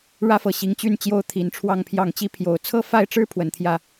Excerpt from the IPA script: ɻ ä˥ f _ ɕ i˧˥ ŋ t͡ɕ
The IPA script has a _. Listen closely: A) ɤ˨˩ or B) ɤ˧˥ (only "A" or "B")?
A